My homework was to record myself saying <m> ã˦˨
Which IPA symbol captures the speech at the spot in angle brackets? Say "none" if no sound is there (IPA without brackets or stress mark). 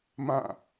m